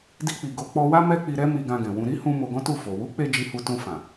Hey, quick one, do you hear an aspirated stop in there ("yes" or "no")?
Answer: no